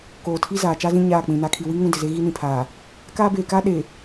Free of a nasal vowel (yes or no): no